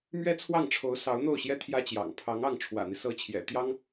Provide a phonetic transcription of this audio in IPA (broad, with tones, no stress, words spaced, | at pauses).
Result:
mɥɛ˥t͡sʰwɑ˥˩ŋʈ͡ʂʰo˧˥ʊ̯ sɑ˧˥ʊ̯n̪o˥˩ʊ̯ɕjɛ˥ t̪ʰjä˥t͡ɕjɑ̰˨˩ŋ pʰɑ˧˥ŋɑ˥˩ŋ ʈ͡ʂʰwä̰˨˩n̪i˦ sɤ˥ t͡ɕʰjɛ̰˨˩ t̪jɑ˥ŋ